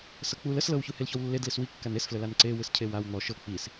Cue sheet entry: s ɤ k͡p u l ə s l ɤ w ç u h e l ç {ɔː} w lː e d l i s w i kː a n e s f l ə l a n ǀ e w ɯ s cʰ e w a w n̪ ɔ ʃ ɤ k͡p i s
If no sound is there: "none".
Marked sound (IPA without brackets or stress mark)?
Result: ɔ